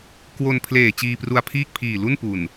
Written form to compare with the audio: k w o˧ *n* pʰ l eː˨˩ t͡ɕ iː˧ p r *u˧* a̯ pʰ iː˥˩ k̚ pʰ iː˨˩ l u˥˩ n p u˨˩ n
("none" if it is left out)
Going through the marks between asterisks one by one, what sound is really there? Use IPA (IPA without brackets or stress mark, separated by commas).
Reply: n, u˧